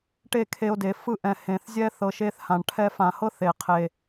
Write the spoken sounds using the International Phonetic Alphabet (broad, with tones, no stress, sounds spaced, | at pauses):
ʈ e˦˨ kʰ e˧ o̯ d e˨ f ɯ˦˨ ʔ ɛ̃˨ h ẽ˨ θ zʲ ɛ˦ θ ɤ˧ ʃ e˦ θ h ã˨ ɳ ʈʰ ɛ˧ f ã˨ h ɤ˦ θ e˨ qʰ e˨